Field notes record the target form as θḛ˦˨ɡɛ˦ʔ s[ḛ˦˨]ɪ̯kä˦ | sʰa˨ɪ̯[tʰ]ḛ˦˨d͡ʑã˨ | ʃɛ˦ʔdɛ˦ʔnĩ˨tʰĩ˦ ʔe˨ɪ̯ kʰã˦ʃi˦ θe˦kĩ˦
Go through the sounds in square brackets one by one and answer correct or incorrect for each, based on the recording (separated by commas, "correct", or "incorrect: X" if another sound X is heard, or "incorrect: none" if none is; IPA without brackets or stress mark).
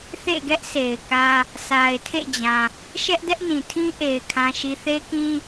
incorrect: e˨, correct